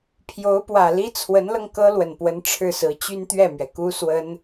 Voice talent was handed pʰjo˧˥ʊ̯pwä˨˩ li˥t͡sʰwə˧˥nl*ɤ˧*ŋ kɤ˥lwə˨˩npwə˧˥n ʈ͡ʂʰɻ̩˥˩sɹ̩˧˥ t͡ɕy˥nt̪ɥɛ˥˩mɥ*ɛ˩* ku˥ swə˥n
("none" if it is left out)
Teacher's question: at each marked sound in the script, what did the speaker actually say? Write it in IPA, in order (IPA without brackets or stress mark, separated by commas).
ɤ˧, ɛ˩